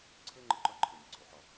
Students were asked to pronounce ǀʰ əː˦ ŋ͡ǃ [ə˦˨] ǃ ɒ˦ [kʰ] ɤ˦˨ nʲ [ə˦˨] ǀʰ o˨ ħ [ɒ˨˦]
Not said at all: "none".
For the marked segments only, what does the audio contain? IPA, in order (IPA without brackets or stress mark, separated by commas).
ə˦˨, ǃʰ, ə˨, ɒ˦˨